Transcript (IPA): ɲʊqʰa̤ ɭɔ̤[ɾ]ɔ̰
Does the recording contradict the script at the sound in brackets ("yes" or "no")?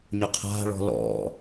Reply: yes